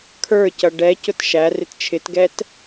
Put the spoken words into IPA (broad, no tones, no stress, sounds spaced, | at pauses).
kʰ ə˞ c ʌ ɖ ɛ c ʊ t ʃ æ r ɪ t t͡ʃʰ ɪ t ɡ ɛ t